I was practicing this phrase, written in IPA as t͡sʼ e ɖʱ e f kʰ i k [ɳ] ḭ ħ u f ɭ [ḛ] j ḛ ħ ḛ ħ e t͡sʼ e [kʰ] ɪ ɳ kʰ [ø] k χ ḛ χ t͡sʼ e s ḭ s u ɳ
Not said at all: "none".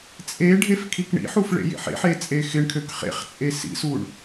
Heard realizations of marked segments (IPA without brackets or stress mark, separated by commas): ɳ, ḛ, x, ø